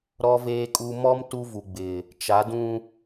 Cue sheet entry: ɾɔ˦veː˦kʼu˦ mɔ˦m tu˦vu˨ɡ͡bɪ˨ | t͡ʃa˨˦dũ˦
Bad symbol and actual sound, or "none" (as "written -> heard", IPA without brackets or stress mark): none